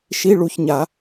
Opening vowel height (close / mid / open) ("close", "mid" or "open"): close